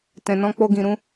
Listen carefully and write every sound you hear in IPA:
t ɛ̃˨ n ɔ̃˧ k͡p o˧ ɡ ĩ˨ ɾ ũ˧

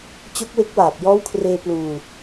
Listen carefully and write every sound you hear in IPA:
t͡ɕ o˦˥ k̚ w e˦˥ k̚ w aː˨˩ p̚ j ɔː˦˥ w kʰ r eː˧ p l uː˧

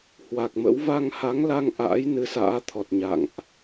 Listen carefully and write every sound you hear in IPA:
h w a˨˩ k̚ m ə̰˧˥ w v a˧ ŋ h a˨˦ ŋ l a˧ ŋ ʔ a̰ː˧˥ j n ɨ˨˦ s a̰ː˧˥ t̪ʰ ɔ˨˩ t̚ ɲ a̰˧˨ ŋ ʔ

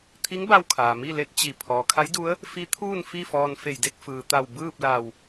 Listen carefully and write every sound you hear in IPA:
t̪ʰ i˧˥ ŋ b a˧ w kʰ aː˩ m i˥˨ l e˧˥ t̚ t͡ɕ i˧˩ pʰ ɔː˩ kʰ a˧˥ j d u˧˥ ə̯ | f i˧˥ t̪ʰ uː˥˨ n f i˥˨ f ɔː˧ n f e˧˩ j d e˥˨ k̚ f ɯː˩ t̪ a˧˩ w b ɯː˥˨ p̚ l a˧˩ w

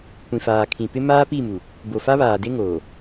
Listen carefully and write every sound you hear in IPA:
kʷ ĩ˨ f aː˨ kʰ ĩ˨ p ɪ˦ m aː˦ p i˦˨ m u˨ | b o˨ f a˦ β aː˨ d e˦ ŋ oː˨

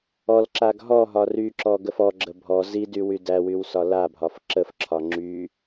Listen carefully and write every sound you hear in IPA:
ɔ l ǁ a ɡ ɦ ɔ ɦ ɒ r y ǁ ɔ ɡ ə f ɔ ɡ͡ǁ ə bʱ ɔ z i d y w y d æ w y w s ɒ l a bʱ ɒ f ǁ ə f ǁʰ ɒ ŋ͡ǁ y

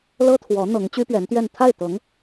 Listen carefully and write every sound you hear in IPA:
l ɤ˥ t̪ʰ w ɔ˧˥ n̪ ɤ˧˥ ŋ t͡ɕ y˥ p ɥ ɛ˧˥ n t̪ ɥ ɛ˥˧ n t̪ʰ a˥˩ ɪ̯ t̪ ɤ˧˥ ŋ

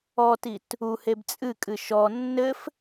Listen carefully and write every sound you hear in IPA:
ɔ t i t | u h e b t͡sʼ ɨ kʼ ɨ ʃ ɔ nː ɘ f

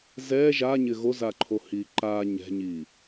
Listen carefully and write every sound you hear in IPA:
z ɛ ʒ a ɲ ɪ ɣ o z a ǃʰ o h i ǃ a ɲ ɛ̤ ɲ i

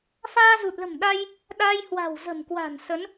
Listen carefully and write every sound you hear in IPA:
f aː˧ z u˨˩ t̚ l ə̤˨˩ m ɗ a˧ j | ɗ a˧ j h w a̤˨˩ w z ə̤˨˩ m k w a̤˨˩ n s ə˨˦ n

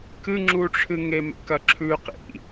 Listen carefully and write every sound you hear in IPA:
k ɨ ŋ͡ǁ u ʈ͡ʂʰ ɨ ŋ e m ḛ k ɐ ǁʰ ʉ q ḭ

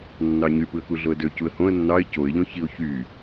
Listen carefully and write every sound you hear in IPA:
nː ɑ ɲ y p ɯ ə̯ k u ɮ o ə̯ d ø c u ə̯ h õ ə̯ nː ɑ ɪ̯ c o ɪ̯ ʎ õ ç i ʊ̯ ç y

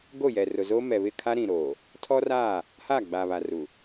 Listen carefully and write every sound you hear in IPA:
ɡ o˦˨ j ɛ˨ r ʊ˨ z oː˦ m ɛ˨ β ɪ˦˨ kʰ a˦ ɾ ĩ˨ ɾ oː˨ | tʰ ɔ˦ r aː˦˨ | h aː˦˨ ɡ͡b aː˨ β a˨ r u˨

